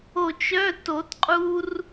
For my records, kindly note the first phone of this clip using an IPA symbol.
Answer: o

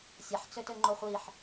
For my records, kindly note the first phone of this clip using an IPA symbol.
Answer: sʲ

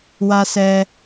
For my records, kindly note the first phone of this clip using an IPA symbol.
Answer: w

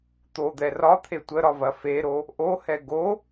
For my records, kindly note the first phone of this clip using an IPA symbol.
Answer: t̪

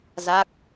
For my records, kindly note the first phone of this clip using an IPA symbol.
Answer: z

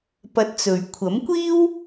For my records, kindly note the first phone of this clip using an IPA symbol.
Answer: p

